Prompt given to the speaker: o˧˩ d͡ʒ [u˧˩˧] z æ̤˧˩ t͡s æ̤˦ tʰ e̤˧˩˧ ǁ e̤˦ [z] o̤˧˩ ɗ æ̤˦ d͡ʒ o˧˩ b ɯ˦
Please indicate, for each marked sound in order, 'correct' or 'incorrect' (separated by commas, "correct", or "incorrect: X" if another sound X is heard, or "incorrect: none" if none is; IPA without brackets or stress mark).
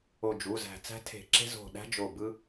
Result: incorrect: u˩˧˩, correct